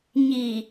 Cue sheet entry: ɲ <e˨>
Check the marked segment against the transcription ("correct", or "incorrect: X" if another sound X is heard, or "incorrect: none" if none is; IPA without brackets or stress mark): incorrect: i˨